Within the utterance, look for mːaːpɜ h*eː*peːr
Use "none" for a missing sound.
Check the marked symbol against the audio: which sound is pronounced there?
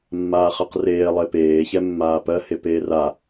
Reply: e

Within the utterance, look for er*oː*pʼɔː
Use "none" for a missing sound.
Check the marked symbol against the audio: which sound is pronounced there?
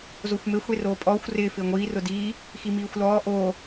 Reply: oː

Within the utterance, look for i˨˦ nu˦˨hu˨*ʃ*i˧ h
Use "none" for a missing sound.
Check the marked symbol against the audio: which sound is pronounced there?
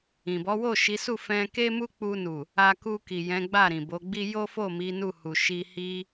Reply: ʃ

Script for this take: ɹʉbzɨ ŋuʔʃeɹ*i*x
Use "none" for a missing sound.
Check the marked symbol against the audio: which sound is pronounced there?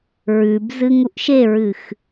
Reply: ɨ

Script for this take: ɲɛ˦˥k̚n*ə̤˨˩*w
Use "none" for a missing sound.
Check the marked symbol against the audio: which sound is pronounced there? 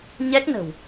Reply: ə̤˨˩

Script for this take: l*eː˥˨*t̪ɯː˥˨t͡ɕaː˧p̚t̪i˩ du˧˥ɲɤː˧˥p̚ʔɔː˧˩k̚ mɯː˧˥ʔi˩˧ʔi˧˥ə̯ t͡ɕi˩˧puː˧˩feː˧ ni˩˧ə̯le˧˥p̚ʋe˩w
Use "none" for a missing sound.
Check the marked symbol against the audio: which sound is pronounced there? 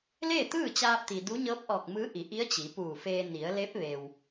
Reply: eː˥˨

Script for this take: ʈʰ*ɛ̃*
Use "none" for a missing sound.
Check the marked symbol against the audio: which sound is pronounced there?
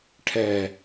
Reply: ɛ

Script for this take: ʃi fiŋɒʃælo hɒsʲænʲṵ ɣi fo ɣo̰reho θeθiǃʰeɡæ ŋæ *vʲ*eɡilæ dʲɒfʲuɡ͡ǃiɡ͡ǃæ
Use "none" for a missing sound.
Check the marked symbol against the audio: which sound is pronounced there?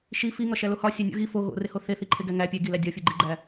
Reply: pʲ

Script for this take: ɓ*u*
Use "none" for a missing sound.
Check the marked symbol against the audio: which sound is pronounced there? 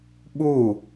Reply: u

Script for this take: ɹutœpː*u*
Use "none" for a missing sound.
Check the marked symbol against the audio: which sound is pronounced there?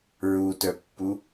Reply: u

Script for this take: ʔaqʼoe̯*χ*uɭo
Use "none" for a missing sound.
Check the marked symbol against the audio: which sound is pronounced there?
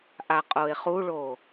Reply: χ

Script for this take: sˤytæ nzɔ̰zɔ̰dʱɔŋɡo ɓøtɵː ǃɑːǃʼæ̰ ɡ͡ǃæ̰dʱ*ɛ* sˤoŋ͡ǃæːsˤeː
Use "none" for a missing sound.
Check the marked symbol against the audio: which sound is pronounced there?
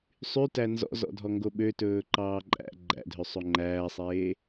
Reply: ø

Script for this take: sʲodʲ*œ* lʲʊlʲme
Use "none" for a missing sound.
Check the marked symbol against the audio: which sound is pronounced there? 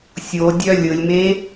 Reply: œ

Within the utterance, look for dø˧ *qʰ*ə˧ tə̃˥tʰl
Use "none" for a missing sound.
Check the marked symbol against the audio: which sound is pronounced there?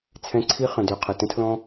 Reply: qʰ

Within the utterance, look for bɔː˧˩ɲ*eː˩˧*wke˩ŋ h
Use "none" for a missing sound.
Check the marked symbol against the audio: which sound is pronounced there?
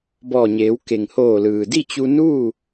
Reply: eː˩˧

